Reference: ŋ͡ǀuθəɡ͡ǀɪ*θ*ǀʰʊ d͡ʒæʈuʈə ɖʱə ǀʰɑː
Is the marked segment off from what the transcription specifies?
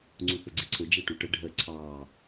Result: yes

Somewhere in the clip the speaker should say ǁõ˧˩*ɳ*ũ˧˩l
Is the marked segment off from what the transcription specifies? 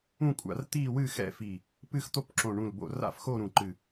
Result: no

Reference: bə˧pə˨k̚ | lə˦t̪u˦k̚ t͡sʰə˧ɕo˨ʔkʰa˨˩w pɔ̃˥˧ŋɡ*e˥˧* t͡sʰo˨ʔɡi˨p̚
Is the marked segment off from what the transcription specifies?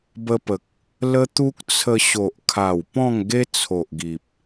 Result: yes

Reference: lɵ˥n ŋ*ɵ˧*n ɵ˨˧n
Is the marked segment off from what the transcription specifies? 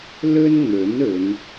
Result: yes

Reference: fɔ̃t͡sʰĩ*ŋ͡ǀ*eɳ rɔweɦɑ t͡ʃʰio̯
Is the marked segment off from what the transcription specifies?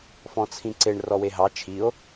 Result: yes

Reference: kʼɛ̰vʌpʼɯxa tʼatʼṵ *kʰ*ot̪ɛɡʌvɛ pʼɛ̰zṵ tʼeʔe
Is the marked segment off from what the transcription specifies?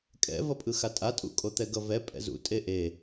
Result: yes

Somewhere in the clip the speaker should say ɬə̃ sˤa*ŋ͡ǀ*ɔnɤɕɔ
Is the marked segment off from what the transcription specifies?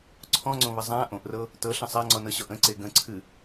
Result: no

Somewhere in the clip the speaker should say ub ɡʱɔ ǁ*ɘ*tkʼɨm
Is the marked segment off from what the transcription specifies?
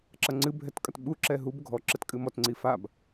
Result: no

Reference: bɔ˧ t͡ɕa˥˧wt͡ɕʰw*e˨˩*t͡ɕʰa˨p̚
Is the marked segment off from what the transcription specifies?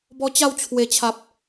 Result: no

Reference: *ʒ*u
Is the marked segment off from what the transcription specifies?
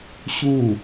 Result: yes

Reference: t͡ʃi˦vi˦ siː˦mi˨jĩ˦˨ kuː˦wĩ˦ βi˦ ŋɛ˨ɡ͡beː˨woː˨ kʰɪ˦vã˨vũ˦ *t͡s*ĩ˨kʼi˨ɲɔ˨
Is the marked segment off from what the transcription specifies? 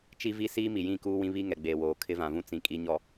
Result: no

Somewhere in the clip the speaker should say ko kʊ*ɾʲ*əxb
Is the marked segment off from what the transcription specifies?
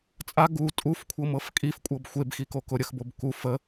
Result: no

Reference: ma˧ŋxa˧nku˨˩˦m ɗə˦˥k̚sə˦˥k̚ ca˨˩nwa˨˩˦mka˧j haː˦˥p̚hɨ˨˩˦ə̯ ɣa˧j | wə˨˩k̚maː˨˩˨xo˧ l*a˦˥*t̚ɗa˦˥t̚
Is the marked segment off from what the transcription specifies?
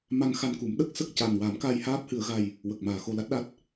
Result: no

